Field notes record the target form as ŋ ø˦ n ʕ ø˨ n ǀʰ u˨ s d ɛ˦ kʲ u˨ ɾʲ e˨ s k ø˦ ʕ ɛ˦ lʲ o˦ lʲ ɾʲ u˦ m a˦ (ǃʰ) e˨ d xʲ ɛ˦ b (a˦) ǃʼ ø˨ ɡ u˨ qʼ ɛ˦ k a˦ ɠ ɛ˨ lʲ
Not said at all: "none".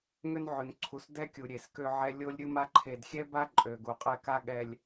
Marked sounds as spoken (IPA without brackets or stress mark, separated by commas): ǃʰ, a˦